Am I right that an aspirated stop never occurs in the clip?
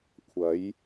no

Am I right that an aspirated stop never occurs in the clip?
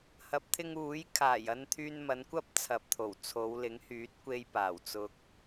no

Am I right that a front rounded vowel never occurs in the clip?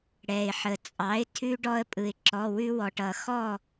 yes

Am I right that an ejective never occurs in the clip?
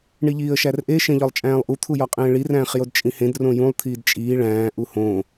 no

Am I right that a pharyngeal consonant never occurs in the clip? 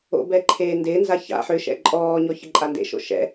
no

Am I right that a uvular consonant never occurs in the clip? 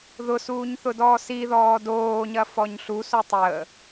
yes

